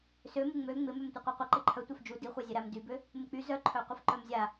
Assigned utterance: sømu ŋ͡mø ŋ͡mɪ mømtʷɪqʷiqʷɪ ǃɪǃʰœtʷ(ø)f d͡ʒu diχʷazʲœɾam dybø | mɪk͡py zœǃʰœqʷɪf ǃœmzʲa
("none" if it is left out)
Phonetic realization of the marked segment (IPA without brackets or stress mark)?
œ